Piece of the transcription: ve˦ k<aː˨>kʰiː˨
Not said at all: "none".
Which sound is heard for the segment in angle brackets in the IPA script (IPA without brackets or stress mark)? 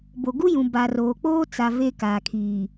aː˨